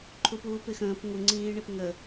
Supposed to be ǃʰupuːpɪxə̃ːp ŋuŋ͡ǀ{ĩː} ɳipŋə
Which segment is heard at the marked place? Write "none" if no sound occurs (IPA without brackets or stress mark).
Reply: ĩː